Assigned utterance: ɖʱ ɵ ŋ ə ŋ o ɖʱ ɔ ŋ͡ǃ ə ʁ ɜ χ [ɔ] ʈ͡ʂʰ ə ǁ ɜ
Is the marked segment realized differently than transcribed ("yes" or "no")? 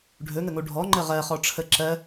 no